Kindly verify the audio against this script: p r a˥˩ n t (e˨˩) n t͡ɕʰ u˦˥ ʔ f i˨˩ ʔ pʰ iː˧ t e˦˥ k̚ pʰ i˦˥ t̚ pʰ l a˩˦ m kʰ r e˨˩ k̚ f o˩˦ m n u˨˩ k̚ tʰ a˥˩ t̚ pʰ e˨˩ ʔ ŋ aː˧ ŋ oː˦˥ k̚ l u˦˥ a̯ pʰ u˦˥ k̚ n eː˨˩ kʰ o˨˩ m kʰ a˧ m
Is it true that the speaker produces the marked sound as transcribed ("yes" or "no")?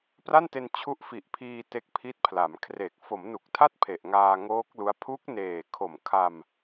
no